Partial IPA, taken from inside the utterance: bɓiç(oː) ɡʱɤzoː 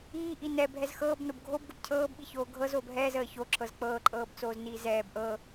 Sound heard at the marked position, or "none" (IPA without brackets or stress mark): oː